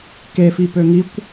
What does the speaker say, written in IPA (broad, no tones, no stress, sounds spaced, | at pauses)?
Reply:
k e f i p ø ŋ i kʷ